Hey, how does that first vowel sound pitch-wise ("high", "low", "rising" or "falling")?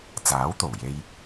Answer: rising